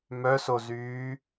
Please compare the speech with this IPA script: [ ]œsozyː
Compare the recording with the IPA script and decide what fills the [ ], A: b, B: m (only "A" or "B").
B